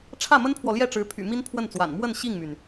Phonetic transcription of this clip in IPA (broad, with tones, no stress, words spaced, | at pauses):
ʈ͡ʂʰä˥˩mə˥npʰwɔ˨ ljɛ˥˩ʈ͡ʂɻ̩˧˥ pʰy̰˨˩ mi˥npʰwə˥˩nt͡swa̰˨˩n mwə˥˧n ɕi˥˩ŋmy˩n